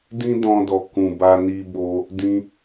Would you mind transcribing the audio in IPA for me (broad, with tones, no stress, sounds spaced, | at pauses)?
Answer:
d ĩ˦ d ɔ̃˧ d ɔ˨ k ũ˨ b a˧ n i˧ b o˧ | d ĩ˧